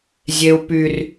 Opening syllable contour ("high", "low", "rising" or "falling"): high